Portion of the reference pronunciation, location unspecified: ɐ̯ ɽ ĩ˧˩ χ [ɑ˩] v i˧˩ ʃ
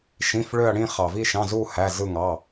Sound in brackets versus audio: correct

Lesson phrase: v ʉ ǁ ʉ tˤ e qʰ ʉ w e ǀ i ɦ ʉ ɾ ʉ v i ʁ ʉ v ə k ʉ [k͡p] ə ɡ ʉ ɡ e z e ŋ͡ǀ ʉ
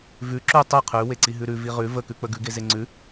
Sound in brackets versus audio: correct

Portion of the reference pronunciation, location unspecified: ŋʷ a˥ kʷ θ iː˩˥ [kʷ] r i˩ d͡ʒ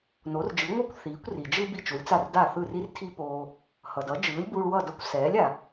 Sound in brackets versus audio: correct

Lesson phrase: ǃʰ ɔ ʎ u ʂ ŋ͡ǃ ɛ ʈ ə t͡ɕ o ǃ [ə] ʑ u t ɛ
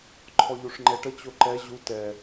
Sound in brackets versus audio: incorrect: ɛ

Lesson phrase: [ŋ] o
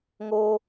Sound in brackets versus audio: correct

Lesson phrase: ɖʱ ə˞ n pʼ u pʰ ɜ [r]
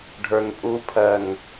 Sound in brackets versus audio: incorrect: n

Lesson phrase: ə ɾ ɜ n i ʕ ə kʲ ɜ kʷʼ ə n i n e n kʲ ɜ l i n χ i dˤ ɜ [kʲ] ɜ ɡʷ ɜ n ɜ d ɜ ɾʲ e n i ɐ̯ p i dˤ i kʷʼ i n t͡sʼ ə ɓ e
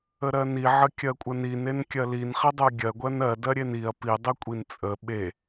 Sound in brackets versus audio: incorrect: ɡʲ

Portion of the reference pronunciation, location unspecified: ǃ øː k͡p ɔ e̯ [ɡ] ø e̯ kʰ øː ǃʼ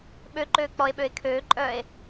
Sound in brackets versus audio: incorrect: ɓ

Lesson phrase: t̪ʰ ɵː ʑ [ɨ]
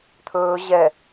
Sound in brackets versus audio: incorrect: ɛ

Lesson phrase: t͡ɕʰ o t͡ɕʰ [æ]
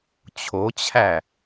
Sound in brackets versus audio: correct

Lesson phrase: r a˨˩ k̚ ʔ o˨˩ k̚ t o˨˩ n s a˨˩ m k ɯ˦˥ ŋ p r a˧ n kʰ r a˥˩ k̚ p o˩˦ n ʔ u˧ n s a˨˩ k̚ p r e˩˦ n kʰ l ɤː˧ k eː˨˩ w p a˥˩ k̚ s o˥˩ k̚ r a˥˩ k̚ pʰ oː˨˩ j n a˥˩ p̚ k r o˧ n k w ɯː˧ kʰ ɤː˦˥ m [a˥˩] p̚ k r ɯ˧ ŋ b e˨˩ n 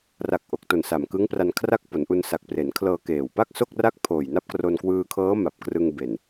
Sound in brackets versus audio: incorrect: a˨˩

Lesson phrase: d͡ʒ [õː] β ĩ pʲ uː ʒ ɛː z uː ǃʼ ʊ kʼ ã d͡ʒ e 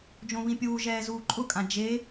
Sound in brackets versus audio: incorrect: õ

